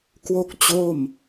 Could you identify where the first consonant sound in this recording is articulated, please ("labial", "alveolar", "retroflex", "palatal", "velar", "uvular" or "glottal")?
velar